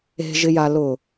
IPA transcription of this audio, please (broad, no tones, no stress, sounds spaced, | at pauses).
e̤ ʒ ɪ j a l ʊ